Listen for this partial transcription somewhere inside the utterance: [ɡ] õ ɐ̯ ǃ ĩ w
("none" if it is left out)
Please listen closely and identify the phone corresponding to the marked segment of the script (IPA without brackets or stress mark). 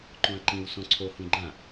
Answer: ǃ